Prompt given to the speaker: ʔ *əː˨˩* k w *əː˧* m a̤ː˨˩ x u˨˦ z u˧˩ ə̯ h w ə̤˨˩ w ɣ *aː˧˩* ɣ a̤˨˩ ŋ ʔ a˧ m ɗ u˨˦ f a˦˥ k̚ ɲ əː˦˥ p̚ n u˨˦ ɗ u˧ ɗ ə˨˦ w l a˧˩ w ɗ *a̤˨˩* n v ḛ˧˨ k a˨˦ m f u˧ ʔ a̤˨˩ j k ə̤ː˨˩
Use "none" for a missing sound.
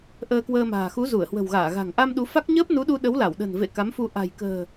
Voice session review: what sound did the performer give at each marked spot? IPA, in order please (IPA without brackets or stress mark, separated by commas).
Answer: əː˧, əː˧, aː˧˩, ə̤˨˩